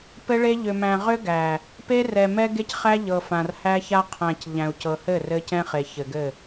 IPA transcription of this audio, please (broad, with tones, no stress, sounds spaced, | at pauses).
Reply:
p ɘ˦ ɭ e˦ ʎ ʏ˨ m æ̃˨ ʁ ʏ˦ ɡ æ˨ | p e˦ r ɛ˨ m ɛ˦ ɡ e˦ c χ æ˦ ʎ ɤ˨ f ã˨ r h æ˦ ç a˦ qʰ æ̃˨ c ʎ æ̃˨ u̯ c ɤ˨ h ɘ˦˨ r ɘ˦ c ɛ̃˦ χ e˨ ç ɘ˨ ɡ ɘ˦˨